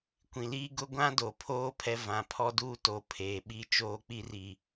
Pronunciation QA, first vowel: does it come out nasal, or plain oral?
nasal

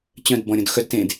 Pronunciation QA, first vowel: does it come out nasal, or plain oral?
nasal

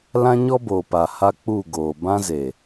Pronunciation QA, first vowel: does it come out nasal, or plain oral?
nasal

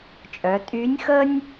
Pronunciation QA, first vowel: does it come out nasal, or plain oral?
oral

